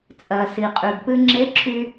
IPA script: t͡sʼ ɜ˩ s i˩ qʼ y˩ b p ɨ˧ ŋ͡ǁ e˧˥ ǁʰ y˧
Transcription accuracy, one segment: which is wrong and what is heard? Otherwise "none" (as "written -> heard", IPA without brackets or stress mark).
none